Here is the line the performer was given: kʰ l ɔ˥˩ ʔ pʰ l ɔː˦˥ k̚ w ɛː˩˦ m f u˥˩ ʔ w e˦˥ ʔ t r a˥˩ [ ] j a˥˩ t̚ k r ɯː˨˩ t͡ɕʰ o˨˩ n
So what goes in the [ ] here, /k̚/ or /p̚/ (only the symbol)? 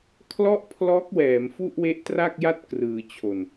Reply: k̚